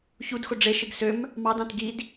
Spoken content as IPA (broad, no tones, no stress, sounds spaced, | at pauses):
ç u d x o ɖ͡ʐ e ʃ ɯ ɡ s ø m | m ɑ d ɑ̃ t ɡ i d